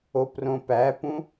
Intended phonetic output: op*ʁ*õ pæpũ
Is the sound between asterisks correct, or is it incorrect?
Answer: incorrect